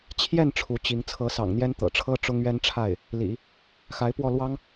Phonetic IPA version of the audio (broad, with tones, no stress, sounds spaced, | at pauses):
t͡ɕʰ j ɛ˥˩ n ʈ͡ʂʰ u˧˥ t͡ɕ i˧˥ ŋ t͡sʰ ɤ˧˥ s ɑ̰˨˩ ŋ n̪ j ɛ˥ n t̪ ɤ̰˨˩ ʈ͡ʂʰ ɤ˥ ʈ͡ʂ ʊ˥ ŋ ɥ ɛ˥ n ʈ͡ʂʰ a˥˩ ɪ̯ | l ḭ˨˩˦ | x a˧˥ ɪ̯ p w ɔ˥˩ l w ɑ˥ ŋ